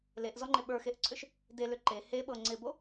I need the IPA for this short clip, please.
l e ʔ z ɔ ŋ͡ǃ ɪ ɓ ə˞ x e ʔ ǀʰ ʏ ʃ | d e l ʏ ǃ e h e ɓ ɤ ŋ͡ǀ ɪ b o

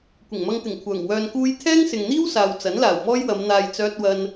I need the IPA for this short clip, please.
kʷ ɪ˨˩ ŋ m ɐ˧ ŋ t̪ ɪ˨˩ ŋ kʷʰ œː˨˩ ŋ w œː˧ n k uː˥ j t̪ʰ ɛː˥ ŋ s ɪ˨ ŋ n̪ iː˥ w s aː˨ w t͡s ɐ˨˥ n l aː˨˩ w m ɔː˥ j w ɐ˨˧ m n̪ aː˧ j t͡s œː˥ t̚ w ɐ˥ n

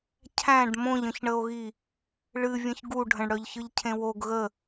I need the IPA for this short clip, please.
cʰ æ̃ ɖ m õ ʎ ə̃ ç ɳ ə o̯ ɣ i | ɭ ɨ vʲ ə̃ ç ɡ u ɖʱ ə̃ ɳ ɽ œ ʎ ç ɯ ʎ cʰ ẽ w o ɡ ɣ ə

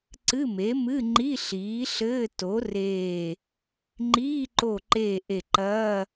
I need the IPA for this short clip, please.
ǀ ɨ˧˥˧ m e˩˥ m ɨ˧˥˧ ŋ͡ǃ i˧˥˧ ɬ iː˩˥ ɬ ɘː˧˥˧ t o˩˥ r eː˧˩ | ŋ͡ǃ iː˧˥˧ ǃ o˧˩ ǃ eː˧˩ ʔ e˧˩ ǃ ɐː˧˥˧

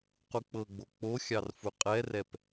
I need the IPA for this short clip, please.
q u k͡p ɤ ɡ͡b o k͡p o xʲ ɑ r f u qʼ ɛ r ɛ p

